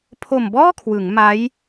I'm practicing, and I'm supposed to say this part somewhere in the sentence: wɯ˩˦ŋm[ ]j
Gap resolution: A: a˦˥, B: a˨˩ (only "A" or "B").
A